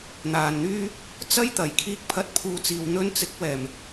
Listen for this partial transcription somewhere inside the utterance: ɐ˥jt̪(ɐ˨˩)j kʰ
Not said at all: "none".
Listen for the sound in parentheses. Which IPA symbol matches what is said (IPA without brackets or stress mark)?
ɐ˨˩